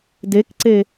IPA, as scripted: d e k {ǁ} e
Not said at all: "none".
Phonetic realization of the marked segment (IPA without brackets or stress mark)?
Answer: ǀ